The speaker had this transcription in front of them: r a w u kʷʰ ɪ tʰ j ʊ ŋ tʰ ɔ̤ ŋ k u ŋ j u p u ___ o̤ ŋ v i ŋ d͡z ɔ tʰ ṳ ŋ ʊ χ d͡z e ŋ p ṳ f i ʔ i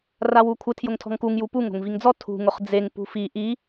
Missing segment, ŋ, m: ŋ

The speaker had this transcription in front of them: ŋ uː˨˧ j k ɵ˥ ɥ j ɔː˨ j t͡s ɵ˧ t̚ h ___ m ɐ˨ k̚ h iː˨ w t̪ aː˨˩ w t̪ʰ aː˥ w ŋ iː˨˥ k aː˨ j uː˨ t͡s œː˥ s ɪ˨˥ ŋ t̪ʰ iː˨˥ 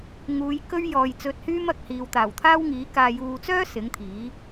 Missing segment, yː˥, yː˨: yː˥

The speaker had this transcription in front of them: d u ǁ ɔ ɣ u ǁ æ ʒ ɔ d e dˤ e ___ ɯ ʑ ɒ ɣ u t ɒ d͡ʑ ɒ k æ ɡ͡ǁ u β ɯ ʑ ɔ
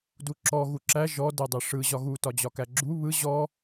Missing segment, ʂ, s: ʂ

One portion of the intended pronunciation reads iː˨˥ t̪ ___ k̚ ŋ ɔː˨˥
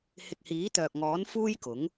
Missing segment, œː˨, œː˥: œː˨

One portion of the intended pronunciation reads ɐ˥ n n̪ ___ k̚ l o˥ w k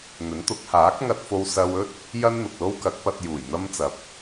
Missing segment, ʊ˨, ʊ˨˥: ʊ˨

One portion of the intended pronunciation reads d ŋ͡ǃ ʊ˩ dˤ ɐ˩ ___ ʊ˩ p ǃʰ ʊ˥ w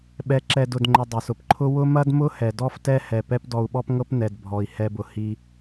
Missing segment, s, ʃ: s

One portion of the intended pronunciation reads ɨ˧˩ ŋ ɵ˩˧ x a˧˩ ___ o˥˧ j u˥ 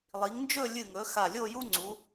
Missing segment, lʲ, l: lʲ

